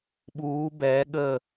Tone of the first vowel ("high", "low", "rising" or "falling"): rising